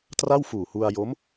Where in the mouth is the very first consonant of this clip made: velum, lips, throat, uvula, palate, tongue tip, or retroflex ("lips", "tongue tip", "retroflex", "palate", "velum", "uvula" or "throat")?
tongue tip